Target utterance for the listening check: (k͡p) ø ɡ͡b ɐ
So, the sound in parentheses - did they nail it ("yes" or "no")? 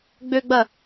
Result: no